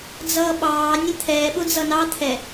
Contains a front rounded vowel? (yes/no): no